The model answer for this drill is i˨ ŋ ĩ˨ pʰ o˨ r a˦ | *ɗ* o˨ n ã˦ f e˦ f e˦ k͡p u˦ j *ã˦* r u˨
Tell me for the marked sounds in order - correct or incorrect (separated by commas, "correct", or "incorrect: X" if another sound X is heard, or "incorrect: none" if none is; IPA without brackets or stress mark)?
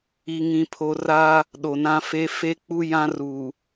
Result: correct, correct